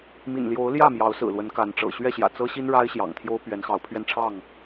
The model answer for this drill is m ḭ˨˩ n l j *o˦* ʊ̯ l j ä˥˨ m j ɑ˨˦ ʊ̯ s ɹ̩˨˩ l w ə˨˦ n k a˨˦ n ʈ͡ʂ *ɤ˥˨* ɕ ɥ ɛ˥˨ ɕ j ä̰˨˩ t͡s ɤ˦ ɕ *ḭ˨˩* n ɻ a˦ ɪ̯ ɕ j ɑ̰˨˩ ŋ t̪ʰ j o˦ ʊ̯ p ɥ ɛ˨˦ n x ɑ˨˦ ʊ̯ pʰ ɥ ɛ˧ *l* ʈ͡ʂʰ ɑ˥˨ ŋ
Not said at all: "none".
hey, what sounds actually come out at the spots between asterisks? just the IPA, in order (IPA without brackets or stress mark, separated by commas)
o˨˦, ɤ̰˨˩, i˦, n